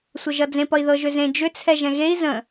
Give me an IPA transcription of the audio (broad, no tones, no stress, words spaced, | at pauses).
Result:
sʷəʒʌd͡zẽp ʌi̯ðɤʒʏzẽ d͡ʒʏt͡sʰɛ ʒɛ̃ɣei̯ zə̃